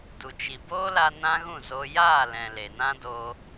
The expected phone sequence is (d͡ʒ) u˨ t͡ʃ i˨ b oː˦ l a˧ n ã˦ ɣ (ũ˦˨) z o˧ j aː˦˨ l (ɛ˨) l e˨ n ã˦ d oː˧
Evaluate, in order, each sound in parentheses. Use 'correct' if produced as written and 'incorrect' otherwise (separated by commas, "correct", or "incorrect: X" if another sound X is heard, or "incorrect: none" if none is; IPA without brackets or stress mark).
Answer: incorrect: d, correct, incorrect: ɛ̃˨